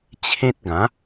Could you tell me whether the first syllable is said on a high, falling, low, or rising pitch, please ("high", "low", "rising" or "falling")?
high